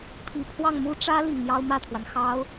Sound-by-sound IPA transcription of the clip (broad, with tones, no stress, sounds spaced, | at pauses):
pʰ i˨˩ pʰ w ɑ˥˩ ŋ m u˥ ʈ͡ʂ ä˥ l i˨˩ ŋ n̪ j ɑ˥ ʊ̯ m ä˥˩ t̪ʰ w a˩ n x ɑ˥ ʊ̯